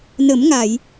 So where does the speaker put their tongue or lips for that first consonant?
tongue tip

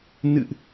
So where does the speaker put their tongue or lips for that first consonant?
tongue tip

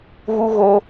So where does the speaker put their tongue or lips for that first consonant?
velum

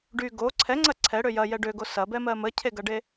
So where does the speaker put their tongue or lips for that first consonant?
retroflex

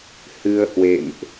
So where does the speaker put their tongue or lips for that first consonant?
throat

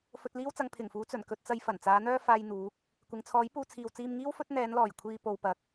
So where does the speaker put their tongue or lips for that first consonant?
lips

